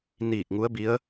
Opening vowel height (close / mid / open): close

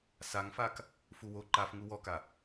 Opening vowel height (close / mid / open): open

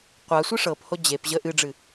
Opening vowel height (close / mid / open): open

